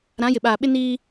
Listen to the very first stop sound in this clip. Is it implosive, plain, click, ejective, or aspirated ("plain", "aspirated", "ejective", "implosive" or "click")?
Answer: implosive